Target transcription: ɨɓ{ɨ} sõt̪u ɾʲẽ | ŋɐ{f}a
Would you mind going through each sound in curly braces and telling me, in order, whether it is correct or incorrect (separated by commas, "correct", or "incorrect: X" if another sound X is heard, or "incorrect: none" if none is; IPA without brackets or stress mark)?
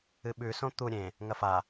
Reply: incorrect: ʉ, correct